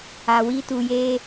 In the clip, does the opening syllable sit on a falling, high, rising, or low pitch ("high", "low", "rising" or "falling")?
low